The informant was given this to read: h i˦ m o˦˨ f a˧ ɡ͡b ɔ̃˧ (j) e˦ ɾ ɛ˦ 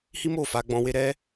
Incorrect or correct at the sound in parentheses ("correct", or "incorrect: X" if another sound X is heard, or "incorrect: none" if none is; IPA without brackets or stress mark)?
incorrect: w